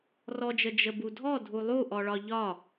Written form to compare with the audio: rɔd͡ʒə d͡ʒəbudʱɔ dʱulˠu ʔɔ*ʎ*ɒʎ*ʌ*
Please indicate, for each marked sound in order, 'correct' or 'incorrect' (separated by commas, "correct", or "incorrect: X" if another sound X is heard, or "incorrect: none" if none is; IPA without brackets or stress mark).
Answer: incorrect: ɭ, incorrect: ɒ